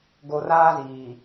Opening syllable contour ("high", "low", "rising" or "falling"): low